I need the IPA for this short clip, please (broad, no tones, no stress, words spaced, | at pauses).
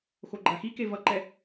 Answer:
xoɡ͡ǃaxike vʌǃɛ